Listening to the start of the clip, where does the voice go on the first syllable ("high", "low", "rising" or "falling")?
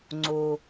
low